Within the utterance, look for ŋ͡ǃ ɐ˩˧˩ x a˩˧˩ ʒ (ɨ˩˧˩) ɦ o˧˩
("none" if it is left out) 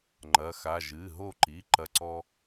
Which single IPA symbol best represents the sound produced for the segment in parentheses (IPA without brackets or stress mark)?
ɨ˩˧˩